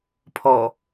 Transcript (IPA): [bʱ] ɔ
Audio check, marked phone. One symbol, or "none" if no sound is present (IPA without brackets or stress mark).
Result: pʰ